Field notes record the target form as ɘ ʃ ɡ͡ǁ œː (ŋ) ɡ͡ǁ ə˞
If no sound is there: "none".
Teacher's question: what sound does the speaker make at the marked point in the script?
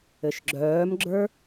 m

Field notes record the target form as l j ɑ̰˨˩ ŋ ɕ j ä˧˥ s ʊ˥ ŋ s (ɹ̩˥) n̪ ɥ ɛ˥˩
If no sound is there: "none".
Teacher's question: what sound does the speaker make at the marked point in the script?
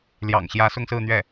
ɹ̩˥˧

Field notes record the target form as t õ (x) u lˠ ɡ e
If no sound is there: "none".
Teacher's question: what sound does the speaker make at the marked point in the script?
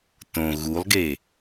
ɣ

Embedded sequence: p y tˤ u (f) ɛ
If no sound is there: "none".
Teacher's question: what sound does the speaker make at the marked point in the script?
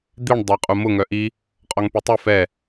f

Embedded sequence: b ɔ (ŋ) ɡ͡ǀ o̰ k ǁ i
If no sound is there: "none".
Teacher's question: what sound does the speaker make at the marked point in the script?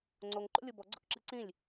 none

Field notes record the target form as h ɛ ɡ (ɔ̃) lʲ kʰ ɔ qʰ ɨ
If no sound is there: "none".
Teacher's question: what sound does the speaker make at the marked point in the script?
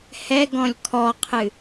ɔ̃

